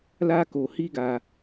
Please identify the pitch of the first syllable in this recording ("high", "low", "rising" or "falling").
high